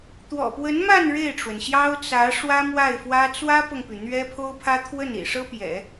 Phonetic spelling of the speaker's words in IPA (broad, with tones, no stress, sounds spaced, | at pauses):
t̪ w ɔ̰˨˩ p w ə˧˥ n m a˥˧ n ɻ e˥˩ ɪ̯ ʈ͡ʂ w ə˩ n ɕ j ɑ˥ ʊ̯ t͡s ä˧˥ ʂ w ä˥ m w a˥˩ ɪ̯ f w ä˥ t͡s w ä˥ p ɤ˨ ŋ p y˩ n̪ ɥ ɛ˥ pʰ o˥ ʊ̯ pʰ ä˥ t̪ʰ w ə˥˩ n ḭ˨˩ ʂ ɤ˥ p j ɛ̰˨˩˦